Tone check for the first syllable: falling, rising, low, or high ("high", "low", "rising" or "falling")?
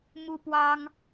high